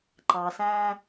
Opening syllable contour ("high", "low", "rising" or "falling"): low